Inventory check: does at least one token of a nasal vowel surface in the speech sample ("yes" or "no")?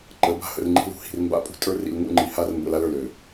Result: no